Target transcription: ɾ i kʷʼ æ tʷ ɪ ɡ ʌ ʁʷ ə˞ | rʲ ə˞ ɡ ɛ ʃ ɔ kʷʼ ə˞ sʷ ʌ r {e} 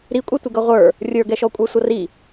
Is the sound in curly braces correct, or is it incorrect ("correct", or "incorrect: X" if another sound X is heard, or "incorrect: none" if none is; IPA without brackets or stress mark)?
incorrect: i